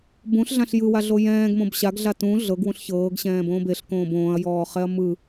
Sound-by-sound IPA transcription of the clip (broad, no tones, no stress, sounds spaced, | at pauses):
b ũ ɬ ɮ ã ɬ j ɯ w a ɮ o j ɛ̃ː ɡ m õ b ɕ a ɡ ɮ a t ũ ɮ ɤ ɡ w ũ ɬ ç ɤː ɡ ɕ ɛ̃ː b õː b e ɬ k õː b õː ɐ̯ j ɔː χ ɛ ɐ̯ m ɯ